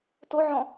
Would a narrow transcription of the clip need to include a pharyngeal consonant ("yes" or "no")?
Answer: yes